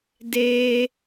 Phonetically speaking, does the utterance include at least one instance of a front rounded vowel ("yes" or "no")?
no